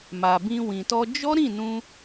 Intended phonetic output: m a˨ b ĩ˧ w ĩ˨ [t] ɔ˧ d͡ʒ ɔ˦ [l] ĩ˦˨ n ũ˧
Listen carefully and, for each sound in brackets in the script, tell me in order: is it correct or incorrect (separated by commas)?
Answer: correct, incorrect